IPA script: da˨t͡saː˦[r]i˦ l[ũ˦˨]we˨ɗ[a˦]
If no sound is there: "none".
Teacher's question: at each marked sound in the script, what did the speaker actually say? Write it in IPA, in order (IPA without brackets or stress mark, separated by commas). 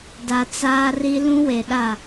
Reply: r, ũ˦, a˦˨